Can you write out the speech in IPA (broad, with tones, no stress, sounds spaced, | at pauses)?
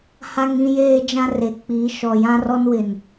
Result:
h a˦ ŋ ĩ˦ j eː˦ d͡ʒ ã˦ r e˨ k͡p i˨˦ ʃ ɔ˨ j ã˦ r ɔ˦ n w ɪ˨ n